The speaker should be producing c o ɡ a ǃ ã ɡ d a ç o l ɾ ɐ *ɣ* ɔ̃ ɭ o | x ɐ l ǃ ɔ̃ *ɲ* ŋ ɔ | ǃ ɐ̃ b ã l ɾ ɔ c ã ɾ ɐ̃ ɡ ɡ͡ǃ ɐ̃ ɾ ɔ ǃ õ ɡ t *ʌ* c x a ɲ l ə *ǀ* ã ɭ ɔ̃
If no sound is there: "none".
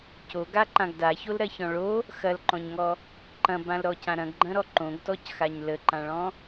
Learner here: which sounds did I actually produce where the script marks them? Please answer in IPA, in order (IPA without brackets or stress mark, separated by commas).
ç, ɲ, ɔ, ǃ